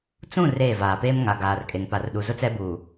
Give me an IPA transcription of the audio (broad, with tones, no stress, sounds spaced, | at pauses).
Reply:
t͡s ũ˦˨ r eː˦˨ v aː˨ p eː˦ m ŋ a˨ ɡ aː˨ r kʼ e˨ ŋ p a˨ r ɗ u˨ z ʊ˦ t͡s ɛ˦ b uː˨